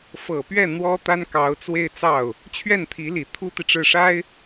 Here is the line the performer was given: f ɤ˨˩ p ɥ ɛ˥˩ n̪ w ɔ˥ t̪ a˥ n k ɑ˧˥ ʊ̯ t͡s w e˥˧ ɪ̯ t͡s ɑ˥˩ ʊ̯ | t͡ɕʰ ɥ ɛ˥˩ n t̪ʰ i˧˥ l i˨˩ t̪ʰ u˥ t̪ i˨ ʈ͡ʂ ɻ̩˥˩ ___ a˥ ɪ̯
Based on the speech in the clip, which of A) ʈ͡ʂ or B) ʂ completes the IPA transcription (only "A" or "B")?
B